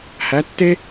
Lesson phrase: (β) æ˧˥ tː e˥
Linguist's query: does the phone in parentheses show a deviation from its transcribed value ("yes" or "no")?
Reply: yes